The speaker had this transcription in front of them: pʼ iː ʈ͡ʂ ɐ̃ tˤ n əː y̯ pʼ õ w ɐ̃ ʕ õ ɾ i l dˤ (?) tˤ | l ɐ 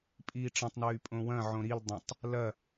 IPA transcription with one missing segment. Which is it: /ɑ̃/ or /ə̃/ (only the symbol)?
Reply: ə̃